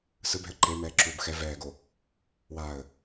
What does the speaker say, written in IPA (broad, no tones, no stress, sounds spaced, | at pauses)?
s ɯ b ɛ̤ ə̯ ǃ e m ɛː ǁ u b x ɛ v ɛː ɡ o | w a ə̯